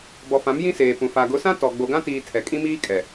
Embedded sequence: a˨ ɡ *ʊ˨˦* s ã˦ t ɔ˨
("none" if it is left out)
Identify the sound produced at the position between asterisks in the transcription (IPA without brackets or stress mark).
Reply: ʊ˨˦